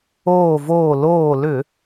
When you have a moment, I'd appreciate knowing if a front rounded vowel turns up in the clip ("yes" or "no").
yes